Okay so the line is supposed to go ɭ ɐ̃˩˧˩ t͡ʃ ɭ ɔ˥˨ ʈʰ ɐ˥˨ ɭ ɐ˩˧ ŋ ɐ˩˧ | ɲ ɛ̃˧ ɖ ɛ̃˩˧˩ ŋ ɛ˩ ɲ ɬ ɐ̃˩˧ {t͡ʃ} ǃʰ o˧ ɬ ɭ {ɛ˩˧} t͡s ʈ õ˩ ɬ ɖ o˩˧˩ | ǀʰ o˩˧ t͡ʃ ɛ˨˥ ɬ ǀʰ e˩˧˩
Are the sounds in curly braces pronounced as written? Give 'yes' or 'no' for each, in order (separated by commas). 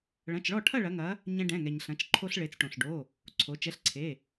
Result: yes, no